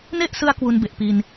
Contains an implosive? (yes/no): no